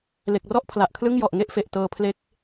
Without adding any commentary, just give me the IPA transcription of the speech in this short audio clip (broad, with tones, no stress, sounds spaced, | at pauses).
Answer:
l e˨˩ k̚ r ɔ˥˩ ʔ pʰ l a˨˩ ʔ kʰ l ɯ˥˩ ŋ j ɔ˨˩ ʔ ŋ e˥˩ ʔ f e˨˩ ʔ t ɤː˧ pʰ l e˦˥ k̚